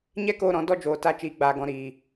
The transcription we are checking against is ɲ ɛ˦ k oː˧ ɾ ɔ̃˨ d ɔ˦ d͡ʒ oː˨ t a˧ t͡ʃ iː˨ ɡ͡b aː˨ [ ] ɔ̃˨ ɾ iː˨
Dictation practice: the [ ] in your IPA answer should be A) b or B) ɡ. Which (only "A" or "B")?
B